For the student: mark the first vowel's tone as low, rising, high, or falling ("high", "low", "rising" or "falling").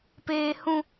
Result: low